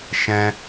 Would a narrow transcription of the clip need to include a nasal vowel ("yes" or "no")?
yes